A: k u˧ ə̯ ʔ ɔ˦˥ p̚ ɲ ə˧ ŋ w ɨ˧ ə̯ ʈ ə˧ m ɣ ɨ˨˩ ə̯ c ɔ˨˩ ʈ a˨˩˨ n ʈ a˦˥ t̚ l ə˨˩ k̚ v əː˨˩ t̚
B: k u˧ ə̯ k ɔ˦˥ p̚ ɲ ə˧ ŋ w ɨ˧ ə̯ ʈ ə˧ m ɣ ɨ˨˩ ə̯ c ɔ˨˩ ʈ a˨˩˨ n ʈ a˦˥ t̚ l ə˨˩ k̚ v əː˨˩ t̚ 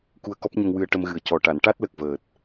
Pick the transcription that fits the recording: B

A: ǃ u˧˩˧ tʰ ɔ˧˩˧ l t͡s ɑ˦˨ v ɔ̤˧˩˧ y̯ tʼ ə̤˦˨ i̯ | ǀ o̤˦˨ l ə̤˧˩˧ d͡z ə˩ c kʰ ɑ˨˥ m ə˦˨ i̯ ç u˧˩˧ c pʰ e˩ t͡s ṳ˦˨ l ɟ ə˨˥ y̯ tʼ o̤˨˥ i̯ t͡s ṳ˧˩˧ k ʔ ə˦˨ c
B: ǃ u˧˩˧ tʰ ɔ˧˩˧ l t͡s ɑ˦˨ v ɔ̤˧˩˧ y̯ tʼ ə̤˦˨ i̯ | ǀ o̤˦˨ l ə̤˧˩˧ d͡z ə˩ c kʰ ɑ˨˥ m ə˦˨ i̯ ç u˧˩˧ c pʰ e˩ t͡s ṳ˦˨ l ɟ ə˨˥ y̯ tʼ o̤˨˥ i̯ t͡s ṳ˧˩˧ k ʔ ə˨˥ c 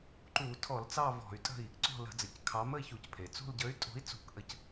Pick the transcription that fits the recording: B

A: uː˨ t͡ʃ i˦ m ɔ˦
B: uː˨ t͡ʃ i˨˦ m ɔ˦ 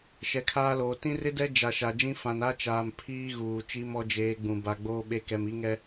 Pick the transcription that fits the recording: A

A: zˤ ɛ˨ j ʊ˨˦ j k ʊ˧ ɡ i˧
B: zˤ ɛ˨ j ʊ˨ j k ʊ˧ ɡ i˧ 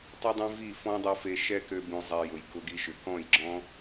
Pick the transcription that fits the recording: B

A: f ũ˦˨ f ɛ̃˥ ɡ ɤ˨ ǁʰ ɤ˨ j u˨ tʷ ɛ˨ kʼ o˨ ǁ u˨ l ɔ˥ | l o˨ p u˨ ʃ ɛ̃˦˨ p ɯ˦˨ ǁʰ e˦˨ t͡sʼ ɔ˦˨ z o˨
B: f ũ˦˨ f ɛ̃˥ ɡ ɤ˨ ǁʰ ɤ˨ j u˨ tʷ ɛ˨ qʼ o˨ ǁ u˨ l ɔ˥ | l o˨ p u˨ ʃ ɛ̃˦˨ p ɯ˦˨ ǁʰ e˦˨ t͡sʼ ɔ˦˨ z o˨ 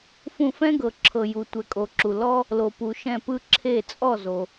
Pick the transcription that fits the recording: A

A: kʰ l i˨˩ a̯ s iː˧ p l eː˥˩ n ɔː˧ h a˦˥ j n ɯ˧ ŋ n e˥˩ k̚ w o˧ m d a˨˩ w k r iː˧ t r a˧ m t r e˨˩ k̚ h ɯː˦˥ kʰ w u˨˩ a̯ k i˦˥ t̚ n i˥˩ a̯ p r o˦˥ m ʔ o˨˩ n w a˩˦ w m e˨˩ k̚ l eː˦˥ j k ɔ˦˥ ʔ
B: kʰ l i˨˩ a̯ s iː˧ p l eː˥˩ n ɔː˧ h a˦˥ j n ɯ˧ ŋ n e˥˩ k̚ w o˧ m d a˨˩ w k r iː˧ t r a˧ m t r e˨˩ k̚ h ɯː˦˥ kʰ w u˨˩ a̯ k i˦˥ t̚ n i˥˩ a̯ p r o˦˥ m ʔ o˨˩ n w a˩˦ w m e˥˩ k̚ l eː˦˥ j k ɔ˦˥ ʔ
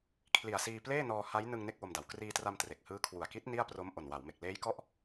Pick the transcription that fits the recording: A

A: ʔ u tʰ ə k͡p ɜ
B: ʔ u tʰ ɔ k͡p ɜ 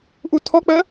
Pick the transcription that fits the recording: B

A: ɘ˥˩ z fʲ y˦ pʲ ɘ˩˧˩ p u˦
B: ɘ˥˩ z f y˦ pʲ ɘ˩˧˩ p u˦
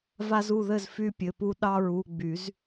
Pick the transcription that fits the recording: B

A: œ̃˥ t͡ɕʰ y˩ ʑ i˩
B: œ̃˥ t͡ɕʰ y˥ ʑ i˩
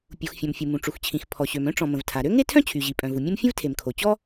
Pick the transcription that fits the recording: A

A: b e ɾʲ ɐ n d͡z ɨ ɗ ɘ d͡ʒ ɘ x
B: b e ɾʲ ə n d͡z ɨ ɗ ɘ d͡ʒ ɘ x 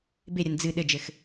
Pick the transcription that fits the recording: A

